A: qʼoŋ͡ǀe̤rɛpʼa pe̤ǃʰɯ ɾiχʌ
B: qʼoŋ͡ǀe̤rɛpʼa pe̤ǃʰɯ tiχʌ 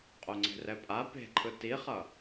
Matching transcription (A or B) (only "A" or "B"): B